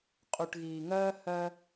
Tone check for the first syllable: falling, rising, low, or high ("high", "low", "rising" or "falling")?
low